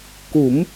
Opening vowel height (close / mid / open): close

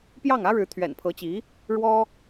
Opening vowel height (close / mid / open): open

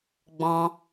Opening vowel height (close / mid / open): mid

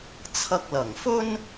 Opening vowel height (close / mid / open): open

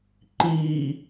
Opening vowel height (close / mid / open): close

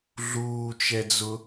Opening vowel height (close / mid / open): close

